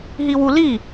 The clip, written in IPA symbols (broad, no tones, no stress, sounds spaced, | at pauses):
ɦ i w u l i